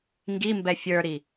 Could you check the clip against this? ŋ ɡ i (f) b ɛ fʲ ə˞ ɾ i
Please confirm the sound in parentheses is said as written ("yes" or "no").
no